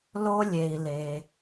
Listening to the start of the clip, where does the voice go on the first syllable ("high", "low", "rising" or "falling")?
high